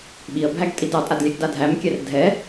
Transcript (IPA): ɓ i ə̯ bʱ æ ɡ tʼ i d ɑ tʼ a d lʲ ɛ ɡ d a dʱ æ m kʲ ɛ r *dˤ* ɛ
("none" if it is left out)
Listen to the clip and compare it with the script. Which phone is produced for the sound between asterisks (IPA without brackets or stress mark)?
dʱ